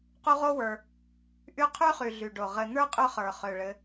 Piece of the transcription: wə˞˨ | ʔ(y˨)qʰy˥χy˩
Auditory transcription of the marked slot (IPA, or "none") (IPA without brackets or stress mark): y˦